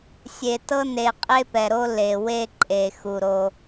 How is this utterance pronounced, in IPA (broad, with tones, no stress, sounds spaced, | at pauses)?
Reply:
sʲ e˨ t ɤ˦ n e˨ qʼ e˦ p ɛ˨ ɾ o˦ l e˨ w e˦ ǃʼ e˨ x u˨ ɾ o˦